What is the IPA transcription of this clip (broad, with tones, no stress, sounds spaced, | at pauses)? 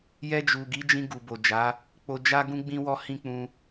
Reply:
j ɛ˧ d͡ʒ u˨ ɡ i˨˦ d͡ʒ ĩ˧ ɡ u˨ b o˨ d͡ʒ a˨˦ | k͡p o˧ d͡ʒ a˦ ɡ ũ˦ ɡ͡b ĩ˦ w ɔ˦ h ĩ˦ k͡p ũ˧